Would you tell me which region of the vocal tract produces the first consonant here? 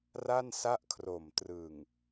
tongue tip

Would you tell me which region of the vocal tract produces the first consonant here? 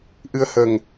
throat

